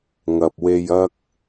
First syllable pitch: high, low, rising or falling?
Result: low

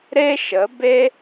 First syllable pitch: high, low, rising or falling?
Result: high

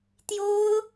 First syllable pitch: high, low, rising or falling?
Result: high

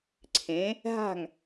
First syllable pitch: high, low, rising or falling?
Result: rising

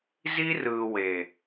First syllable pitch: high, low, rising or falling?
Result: high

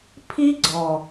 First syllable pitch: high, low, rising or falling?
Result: high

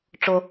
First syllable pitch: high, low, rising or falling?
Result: low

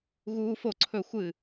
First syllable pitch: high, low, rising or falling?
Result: high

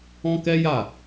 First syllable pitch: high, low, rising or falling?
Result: high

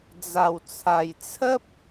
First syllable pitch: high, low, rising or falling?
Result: low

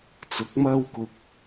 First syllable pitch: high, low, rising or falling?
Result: rising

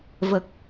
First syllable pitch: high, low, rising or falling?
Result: low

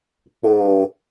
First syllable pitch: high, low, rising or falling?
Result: low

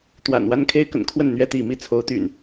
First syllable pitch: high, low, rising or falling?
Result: low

